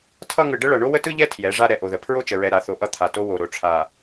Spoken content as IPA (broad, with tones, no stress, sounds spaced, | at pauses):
tʰ ʌ˦ ŋ ɯ˨ ɖ ə˦ ɭ ʌ˨ ɳ o˦ w ə˦ t ɯ˦ ʎ ɛ˦ tʰ j ɛ˨˦ ʐ a˦ ɾ ɛ˨ ʔ o˨ ð ə˨ pʰ ɹ o˦ t͡ʃ ə˨ ɹ ɛ˨ ɾ a˨ θ o˨ ʔ ʌ˦ t̪ʰ a˨ t o˦ w o˨ ɾ o˨ ʈ͡ʂʰ a˨